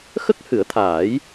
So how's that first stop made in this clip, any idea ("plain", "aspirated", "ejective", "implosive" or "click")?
plain